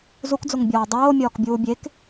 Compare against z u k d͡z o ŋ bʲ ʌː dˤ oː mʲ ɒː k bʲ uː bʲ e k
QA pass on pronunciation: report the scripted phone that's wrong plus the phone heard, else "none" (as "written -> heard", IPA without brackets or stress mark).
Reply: ʌː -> ɒː